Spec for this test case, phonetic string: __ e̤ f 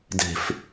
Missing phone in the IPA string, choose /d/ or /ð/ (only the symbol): d